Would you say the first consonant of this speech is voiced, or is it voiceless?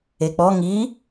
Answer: voiceless